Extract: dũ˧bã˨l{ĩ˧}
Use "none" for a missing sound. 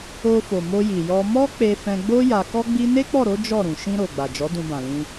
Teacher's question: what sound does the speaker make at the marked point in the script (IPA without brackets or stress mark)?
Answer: ĩ˧